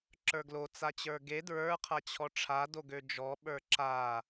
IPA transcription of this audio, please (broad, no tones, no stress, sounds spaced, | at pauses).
ǁ ə˞ ɡ l o t͡s a t͡ɕ ə˞ ɡ e d ɹ ə˞ qʰ a t͡ɕʰ ɔ ʈ͡ʂʰ a d o ɡ ø d͡ʒ ɔ ɓ ə˞ ǁ a